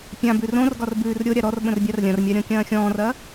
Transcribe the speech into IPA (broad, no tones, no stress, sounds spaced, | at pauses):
pʲ ã b ʉ r õ r ɡ ɒ r b ʉː r ɾʲ o ɾʲ a ɾ ɔ r ɓ ə̃ r bʲ a r lʲ ɐ̃ r mʲ a ɾʲ ɔ̃ kʲ ɐ̃ː xʲ ɔ̃ː r ɐː